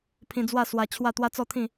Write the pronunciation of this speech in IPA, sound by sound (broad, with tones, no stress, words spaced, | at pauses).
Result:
pʰĩ˧d͡zwa˥˧ swa˧t͡ɕʰwa˥˧ t̪wa˦t͡sɔ˥˧t̪ʰĩ˥˧